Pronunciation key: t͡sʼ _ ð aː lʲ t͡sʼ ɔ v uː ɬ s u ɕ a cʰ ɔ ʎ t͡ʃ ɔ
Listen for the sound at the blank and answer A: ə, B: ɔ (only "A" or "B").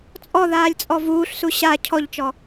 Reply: B